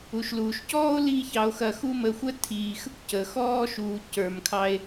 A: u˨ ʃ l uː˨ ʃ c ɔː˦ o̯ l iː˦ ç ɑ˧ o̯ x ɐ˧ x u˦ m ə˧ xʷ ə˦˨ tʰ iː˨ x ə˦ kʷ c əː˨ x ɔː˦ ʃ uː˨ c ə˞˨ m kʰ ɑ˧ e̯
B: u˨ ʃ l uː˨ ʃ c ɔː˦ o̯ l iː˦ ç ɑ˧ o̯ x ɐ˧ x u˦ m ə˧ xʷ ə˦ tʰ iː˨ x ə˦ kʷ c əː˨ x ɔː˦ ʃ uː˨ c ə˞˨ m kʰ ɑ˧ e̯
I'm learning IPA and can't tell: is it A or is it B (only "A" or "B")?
B